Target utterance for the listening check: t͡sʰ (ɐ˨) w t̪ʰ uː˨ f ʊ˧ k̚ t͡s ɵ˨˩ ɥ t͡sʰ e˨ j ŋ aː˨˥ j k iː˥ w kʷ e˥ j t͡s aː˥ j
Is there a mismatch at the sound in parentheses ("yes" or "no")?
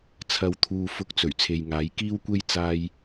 no